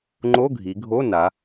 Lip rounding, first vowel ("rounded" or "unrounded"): rounded